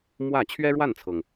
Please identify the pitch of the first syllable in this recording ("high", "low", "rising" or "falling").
falling